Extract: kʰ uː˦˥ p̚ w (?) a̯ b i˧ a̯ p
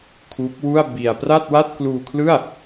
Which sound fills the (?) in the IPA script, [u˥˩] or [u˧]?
u˥˩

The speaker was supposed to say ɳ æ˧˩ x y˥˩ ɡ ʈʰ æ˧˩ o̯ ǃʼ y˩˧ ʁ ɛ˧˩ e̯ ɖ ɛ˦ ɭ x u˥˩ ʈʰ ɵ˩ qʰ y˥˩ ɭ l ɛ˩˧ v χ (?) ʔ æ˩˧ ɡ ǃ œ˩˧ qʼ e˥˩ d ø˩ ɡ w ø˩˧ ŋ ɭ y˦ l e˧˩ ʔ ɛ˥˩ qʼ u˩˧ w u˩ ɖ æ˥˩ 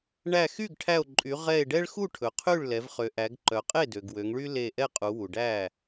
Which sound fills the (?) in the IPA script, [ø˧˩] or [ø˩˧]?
ø˩˧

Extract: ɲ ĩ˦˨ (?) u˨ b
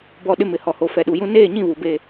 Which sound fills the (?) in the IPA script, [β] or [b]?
β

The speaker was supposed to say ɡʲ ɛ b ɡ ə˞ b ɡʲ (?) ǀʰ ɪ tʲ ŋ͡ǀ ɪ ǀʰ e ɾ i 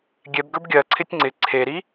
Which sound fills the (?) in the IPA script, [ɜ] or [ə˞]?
ɜ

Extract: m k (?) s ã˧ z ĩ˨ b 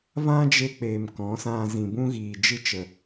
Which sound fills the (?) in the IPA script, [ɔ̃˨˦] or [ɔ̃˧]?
ɔ̃˨˦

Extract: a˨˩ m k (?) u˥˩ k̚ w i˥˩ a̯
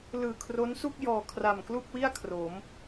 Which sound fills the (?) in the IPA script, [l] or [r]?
l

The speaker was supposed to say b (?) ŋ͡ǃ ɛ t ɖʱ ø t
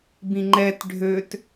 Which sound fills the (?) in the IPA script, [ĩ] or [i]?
ĩ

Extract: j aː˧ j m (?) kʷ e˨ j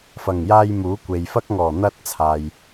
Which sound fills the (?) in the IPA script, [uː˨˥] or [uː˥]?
uː˨˥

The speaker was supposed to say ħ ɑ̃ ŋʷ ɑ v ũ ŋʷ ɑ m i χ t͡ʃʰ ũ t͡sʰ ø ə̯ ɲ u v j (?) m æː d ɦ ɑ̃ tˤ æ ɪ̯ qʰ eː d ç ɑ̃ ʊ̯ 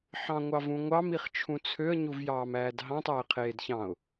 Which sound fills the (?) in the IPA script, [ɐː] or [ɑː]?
ɑː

